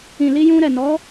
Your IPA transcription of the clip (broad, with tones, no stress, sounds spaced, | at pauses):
ĩ˨ l i˧ j ũ˧ ɾ ɛ˨ n ɔ˨˦